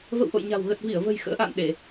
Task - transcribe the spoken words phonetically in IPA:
v ə̰˧˨ w ʔ o̰˧˨ j ɲ a̤˨˩ w ɣ ə˨˩ t̚ v i˧˩ ə̯ v ə̤˨˩ j x ə̰ː˧˥ ʔ a̰ː˧˨ n ɗ e˧˩˨

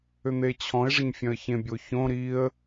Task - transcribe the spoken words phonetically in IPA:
ʏ n̪ e t͡ɕʰ ɔ̃ ɪ̯ ʐ ə ɲ fʲ œ̃ ə̯ ç ẽ bʲ o ç õ ɾ i ə̯

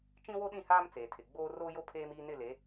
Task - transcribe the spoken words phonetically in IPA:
t͡ʃ ĩ˦ w o˦ ɗ ĩ˦˨ h aː˦ m t͡s eː˨ tʰ ɪ˨ ɡ͡b oː˦ r oː˦ j o˦ pʰ eː˦ m iː˦ n ɪ˦˨ l e˨˦

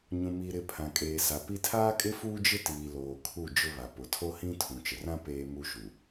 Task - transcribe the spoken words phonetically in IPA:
ɲ ũ˨ m i˨ ɾ ɪ˨ pʰ ã˨ kʼ eː˨ s a˨ p i˦ tʰ aː˦ kʼ ɪ˦ f uː˦ d͡ʒ ɪ˦ t iː˨ l oː˨ kʰ u˦˨ d͡ʒ ʊ˦ β a˨ p ʊ˨ tʰ o˦ h ĩ˦ tʰ ũ˨ t͡ʃ ɪ˨ r ã˦ p eː˦ m u˦ ʃ u˨

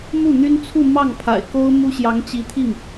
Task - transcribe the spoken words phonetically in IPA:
m u˥˩ n̪ y˥ n t͡sʰ u˥˧ m ɑ˥˩ ŋ pʰ a̰˨˩ ɪ̯ k o˥ ʊ̯ m u˥ ɕ j ɑ˧˥ ŋ t͡ɕ i˧˥ t̪ʰ i˥˩ ŋ

